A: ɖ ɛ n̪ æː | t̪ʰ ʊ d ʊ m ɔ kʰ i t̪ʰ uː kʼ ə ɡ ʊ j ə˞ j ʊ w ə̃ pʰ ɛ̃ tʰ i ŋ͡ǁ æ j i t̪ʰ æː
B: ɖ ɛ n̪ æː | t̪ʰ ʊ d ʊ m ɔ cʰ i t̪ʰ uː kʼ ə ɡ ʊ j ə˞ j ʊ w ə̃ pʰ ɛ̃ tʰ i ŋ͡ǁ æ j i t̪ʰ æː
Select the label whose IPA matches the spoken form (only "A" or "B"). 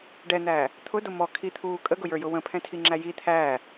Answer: A